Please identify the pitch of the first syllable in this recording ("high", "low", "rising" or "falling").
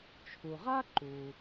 low